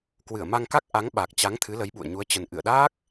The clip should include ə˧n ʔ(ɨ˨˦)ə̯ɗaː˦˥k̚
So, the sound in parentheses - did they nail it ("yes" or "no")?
no